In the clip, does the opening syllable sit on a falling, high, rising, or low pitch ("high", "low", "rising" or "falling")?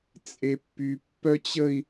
high